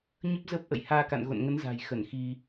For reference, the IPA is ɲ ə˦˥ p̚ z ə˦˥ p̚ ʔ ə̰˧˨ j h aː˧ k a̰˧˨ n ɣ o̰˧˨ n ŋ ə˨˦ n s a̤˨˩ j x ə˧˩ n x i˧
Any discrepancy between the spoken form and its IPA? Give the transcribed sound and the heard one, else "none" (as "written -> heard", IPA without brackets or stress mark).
s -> z